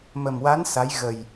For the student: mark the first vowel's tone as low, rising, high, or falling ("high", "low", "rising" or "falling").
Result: low